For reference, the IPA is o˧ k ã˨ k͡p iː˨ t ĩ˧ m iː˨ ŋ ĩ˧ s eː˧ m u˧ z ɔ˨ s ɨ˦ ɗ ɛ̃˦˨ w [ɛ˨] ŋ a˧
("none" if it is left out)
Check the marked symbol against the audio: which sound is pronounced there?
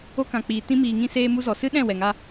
ɛ˨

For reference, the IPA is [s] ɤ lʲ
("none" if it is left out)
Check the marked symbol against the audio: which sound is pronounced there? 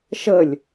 ʃ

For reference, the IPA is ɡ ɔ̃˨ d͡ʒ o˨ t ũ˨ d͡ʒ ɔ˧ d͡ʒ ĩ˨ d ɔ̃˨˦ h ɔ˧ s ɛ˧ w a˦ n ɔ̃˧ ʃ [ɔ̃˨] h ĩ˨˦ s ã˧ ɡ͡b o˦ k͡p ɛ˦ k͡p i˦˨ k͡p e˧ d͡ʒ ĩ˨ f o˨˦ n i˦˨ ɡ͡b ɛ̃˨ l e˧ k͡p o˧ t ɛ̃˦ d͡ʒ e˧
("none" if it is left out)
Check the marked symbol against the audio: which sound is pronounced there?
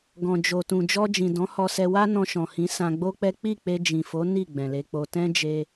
ɔ̃˨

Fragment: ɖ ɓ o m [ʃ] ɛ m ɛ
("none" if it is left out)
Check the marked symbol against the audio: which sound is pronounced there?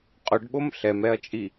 ɬ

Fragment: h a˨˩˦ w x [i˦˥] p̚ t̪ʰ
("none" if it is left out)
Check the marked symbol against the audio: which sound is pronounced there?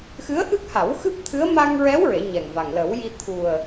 ɨ˦˥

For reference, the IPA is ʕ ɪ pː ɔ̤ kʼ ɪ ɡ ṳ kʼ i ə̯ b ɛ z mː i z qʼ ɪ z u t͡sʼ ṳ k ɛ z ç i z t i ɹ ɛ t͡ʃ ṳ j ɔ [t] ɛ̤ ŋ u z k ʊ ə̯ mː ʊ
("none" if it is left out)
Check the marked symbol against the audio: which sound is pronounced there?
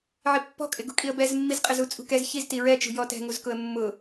t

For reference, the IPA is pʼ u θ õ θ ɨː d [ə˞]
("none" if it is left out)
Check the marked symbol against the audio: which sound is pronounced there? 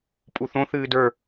ə˞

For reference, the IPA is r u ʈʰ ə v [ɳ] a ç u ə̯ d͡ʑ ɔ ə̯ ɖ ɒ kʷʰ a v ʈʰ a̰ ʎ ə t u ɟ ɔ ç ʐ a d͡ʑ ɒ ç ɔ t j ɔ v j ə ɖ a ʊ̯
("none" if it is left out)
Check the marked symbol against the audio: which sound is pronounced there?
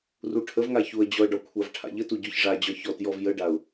ŋ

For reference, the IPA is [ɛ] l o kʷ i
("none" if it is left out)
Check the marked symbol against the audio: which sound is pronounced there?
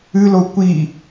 ɨ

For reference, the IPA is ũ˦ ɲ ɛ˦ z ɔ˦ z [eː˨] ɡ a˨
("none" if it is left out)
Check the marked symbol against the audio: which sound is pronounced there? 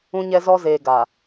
eː˨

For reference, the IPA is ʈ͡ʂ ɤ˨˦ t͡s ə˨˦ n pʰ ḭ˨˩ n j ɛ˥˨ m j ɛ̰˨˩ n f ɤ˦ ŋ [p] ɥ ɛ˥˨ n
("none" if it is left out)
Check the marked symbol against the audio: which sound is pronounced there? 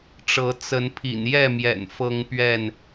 p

